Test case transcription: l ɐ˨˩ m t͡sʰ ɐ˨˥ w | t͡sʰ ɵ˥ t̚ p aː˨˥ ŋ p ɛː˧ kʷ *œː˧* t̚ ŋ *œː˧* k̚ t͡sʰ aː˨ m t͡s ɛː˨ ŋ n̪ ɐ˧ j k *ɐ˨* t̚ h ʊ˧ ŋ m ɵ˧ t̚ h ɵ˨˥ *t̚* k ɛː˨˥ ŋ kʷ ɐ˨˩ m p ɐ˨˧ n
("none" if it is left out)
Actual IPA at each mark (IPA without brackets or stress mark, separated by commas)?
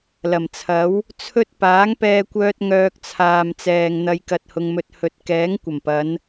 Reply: œː˧, œː˧, ɐ˧, t̚